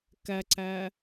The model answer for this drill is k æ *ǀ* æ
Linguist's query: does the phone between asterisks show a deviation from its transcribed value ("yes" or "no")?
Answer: no